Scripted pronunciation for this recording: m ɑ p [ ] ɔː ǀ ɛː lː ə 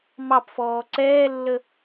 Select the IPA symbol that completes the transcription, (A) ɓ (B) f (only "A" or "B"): B